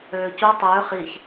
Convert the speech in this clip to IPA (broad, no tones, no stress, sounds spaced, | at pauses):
øː c u tˤ øː χ i ç